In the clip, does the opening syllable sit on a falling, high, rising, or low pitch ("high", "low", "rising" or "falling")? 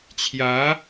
rising